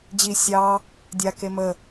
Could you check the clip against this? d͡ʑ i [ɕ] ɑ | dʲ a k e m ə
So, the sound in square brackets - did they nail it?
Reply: no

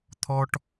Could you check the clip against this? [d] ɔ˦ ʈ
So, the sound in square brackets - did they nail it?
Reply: no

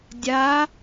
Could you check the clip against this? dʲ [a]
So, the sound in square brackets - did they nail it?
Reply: yes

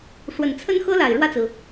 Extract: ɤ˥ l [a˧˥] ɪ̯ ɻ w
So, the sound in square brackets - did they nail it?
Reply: no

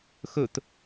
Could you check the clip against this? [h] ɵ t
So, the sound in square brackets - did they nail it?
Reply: no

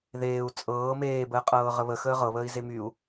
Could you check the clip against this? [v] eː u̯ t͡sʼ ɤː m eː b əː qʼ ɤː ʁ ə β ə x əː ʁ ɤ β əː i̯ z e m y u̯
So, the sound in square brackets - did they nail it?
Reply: no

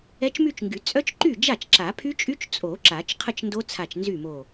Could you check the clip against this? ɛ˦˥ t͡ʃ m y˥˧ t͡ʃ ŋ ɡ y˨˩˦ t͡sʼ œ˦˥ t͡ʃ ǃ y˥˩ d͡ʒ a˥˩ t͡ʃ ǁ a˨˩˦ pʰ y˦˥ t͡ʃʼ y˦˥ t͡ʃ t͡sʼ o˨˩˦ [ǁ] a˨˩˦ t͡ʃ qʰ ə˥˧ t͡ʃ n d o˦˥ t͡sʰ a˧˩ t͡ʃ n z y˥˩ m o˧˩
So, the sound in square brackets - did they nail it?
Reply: yes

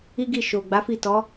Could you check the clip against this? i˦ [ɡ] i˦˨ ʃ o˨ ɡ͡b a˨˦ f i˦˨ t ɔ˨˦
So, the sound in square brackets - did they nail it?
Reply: yes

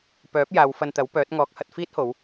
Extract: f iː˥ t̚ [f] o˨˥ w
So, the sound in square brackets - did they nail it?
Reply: no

